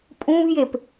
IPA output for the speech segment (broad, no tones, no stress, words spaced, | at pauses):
pʼũvjep